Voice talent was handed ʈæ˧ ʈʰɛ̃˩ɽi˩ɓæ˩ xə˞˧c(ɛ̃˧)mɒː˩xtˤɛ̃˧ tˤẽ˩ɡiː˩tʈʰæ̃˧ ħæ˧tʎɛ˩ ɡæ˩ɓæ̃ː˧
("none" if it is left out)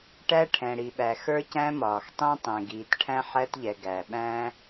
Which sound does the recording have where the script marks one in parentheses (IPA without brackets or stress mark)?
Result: æ̃˧